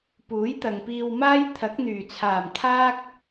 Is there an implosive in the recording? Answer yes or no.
no